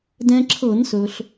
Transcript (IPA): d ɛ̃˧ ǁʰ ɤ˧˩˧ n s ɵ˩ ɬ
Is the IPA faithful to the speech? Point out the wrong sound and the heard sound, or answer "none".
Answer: none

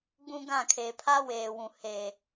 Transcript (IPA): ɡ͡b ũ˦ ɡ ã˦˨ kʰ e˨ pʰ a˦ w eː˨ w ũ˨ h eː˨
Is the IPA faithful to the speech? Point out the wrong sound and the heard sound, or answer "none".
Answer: none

